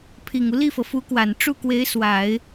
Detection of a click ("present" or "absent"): absent